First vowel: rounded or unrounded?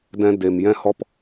unrounded